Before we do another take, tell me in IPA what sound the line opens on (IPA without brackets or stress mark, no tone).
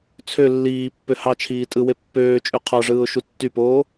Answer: t͡sʰ